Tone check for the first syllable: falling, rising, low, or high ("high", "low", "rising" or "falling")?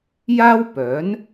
high